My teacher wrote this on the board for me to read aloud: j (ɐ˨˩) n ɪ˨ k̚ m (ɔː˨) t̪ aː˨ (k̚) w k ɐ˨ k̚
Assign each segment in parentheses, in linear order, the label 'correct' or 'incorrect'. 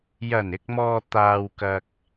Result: correct, correct, incorrect: none

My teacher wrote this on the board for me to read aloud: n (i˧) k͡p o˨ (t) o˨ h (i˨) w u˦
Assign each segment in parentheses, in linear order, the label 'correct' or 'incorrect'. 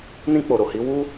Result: incorrect: ĩ˧, incorrect: ɾ, incorrect: i˨˦

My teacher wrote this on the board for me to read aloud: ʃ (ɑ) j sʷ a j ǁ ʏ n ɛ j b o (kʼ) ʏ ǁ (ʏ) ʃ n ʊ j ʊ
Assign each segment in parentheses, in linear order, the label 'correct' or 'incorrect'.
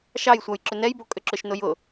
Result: correct, correct, correct

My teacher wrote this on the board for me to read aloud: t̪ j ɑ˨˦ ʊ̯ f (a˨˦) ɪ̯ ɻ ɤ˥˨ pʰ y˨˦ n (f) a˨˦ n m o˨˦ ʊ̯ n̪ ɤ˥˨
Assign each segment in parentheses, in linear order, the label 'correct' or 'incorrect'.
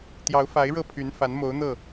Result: correct, correct

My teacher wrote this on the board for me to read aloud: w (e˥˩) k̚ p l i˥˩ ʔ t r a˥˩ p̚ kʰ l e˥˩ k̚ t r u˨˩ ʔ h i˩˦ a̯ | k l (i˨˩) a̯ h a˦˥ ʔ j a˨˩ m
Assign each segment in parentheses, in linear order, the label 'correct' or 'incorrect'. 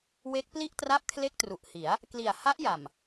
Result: incorrect: e˦˥, correct

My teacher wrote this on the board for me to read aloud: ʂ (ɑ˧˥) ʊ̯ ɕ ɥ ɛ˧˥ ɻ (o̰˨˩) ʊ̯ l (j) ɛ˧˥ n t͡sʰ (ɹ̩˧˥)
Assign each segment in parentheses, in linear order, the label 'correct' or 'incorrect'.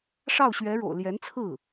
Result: incorrect: ɑ˥˩, correct, correct, incorrect: ɹ̩˥˩

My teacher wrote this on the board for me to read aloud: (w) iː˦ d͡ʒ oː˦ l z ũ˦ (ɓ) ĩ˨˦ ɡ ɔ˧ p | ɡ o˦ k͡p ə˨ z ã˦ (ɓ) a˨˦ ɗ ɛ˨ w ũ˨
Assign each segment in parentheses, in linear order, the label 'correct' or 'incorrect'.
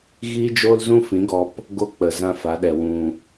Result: incorrect: ɣ, incorrect: f, incorrect: f

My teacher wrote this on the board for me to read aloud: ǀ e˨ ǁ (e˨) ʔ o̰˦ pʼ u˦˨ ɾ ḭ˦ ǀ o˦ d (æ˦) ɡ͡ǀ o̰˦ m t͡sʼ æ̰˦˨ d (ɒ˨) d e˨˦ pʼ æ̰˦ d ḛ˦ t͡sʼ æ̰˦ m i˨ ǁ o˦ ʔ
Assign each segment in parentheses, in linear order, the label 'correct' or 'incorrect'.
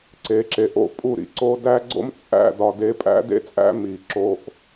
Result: correct, correct, correct

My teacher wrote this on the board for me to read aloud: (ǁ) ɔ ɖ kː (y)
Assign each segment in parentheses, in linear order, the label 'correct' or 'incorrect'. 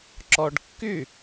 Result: correct, correct

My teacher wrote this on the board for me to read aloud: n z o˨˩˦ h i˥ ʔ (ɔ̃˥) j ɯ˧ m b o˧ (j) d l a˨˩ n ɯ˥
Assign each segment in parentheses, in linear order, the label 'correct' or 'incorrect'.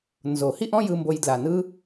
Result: correct, correct

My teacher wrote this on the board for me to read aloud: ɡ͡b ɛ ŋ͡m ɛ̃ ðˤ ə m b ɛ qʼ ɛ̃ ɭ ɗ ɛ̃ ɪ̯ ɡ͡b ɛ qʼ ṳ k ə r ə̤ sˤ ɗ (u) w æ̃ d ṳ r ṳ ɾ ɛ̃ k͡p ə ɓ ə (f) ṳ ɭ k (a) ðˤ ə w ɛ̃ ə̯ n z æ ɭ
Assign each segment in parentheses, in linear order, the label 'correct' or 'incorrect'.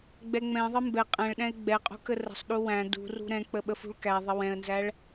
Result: correct, correct, incorrect: æ

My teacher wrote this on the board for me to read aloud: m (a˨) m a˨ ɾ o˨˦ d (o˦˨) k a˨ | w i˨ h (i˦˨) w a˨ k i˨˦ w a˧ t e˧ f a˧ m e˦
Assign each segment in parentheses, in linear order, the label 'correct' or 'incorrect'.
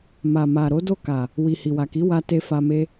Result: correct, correct, incorrect: i˨

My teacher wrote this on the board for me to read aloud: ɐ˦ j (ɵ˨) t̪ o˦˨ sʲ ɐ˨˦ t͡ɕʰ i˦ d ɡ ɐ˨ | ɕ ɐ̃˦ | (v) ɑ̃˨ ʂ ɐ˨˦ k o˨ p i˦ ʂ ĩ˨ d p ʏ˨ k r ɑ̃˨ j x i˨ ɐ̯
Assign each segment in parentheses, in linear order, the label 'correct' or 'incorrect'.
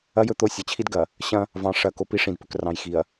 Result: correct, correct

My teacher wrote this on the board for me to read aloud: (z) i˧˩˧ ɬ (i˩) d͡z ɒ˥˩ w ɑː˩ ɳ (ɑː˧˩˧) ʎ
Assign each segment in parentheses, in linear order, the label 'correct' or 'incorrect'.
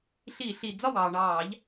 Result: incorrect: ɬ, correct, correct

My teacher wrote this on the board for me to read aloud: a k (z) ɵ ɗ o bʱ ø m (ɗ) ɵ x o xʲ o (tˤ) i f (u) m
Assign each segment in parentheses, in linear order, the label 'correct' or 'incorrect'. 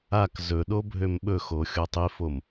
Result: correct, incorrect: ɓ, correct, incorrect: o

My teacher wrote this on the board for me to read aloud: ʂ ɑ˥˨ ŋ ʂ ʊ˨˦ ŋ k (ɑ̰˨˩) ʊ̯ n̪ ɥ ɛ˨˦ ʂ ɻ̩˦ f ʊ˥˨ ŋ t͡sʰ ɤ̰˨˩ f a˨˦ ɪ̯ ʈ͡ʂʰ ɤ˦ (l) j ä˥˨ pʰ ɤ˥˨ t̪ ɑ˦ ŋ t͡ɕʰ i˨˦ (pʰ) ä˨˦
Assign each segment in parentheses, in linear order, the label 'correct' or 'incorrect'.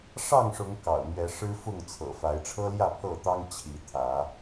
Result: correct, correct, incorrect: t̪ʰ

